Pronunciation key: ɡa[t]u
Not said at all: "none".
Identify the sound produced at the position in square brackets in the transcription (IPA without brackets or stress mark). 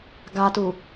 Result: t